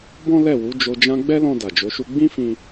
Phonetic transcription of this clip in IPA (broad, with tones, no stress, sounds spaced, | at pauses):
b ɔ̃˦ l ɛ˦˨ w u˨˦ d͡ʒ o˧ d͡ʒ ã˦ ɡ͡b ɛ˦ l ɔ̃˧ d a˨ d͡ʒ o˨˦ ʃ u˦ ɡ͡b ĩ˦ f ĩ˧